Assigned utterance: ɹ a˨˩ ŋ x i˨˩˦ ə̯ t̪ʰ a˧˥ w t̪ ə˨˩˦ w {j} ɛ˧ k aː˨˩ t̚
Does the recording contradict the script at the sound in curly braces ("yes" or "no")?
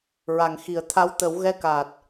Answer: yes